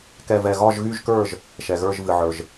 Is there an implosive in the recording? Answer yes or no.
no